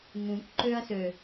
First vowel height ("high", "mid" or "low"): high